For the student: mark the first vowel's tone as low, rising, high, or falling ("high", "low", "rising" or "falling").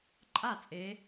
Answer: falling